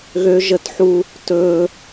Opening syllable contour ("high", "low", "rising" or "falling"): high